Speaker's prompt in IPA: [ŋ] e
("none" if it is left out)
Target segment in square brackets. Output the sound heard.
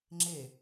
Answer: ŋ͡ǁ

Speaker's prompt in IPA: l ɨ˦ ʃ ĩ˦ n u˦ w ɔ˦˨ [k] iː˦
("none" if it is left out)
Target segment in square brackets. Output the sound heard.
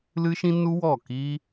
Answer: k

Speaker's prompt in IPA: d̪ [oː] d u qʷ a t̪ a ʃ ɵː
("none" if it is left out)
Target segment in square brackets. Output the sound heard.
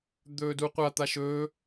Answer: ɵː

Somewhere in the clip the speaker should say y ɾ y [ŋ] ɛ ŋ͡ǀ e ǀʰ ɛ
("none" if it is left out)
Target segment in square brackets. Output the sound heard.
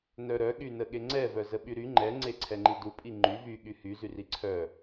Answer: ŋ͡ǃ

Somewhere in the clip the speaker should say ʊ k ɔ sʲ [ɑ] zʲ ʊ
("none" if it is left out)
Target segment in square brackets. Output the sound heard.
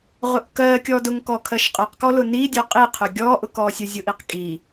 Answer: ə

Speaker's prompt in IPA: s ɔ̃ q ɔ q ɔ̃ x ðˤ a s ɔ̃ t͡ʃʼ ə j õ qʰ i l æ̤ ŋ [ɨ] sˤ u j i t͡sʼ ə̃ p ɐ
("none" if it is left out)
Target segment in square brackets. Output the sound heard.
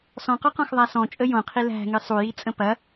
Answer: ɨ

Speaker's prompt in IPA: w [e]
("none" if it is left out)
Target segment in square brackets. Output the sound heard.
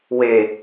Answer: e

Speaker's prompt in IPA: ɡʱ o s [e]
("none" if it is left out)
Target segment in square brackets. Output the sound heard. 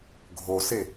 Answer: e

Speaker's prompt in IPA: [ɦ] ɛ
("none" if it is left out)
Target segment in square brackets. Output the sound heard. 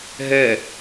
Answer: ɦ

